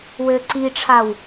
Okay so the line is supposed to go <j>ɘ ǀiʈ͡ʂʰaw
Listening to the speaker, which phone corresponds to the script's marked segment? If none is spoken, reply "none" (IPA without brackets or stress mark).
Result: w